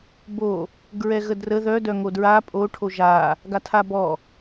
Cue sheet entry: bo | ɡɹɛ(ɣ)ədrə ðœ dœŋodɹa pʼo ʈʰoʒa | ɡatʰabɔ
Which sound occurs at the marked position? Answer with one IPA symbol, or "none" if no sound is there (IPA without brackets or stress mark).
ɣ